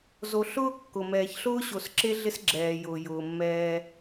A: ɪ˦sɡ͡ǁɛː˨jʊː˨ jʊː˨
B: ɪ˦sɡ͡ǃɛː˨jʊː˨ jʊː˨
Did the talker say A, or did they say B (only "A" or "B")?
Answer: A